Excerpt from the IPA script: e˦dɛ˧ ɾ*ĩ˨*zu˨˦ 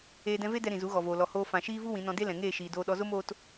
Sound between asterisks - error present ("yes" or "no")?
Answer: no